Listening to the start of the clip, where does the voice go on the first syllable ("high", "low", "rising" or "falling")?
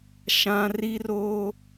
high